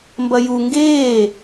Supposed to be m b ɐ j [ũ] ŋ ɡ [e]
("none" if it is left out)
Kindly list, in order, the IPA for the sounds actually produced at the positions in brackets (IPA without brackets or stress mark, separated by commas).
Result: u, eː